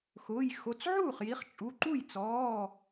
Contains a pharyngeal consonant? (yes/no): yes